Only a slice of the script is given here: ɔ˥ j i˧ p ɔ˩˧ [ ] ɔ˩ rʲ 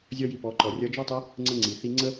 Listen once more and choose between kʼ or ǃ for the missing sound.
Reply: ǃ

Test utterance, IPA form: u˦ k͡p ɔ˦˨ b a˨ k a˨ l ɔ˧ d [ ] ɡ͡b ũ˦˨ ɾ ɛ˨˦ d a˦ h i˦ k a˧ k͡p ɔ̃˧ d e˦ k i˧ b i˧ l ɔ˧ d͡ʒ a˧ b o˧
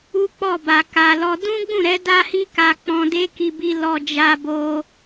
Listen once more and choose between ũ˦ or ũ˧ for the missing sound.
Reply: ũ˦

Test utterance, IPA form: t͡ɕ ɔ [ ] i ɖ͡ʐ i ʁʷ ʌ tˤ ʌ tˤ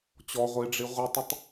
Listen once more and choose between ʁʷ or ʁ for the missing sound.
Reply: ʁʷ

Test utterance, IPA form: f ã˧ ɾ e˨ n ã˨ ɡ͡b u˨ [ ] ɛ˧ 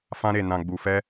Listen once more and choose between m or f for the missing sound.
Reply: f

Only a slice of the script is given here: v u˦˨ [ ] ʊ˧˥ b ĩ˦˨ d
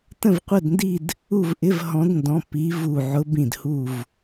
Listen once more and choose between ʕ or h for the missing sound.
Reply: ʕ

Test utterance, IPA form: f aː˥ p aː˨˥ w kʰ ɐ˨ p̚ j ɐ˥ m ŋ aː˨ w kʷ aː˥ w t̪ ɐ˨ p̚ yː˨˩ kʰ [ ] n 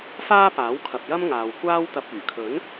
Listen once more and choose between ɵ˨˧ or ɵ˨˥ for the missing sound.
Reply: ɵ˨˥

